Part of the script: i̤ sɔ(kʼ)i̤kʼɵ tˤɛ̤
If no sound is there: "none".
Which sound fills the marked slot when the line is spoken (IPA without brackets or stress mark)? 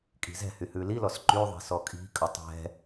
kʼ